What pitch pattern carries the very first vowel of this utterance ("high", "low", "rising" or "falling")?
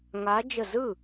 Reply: rising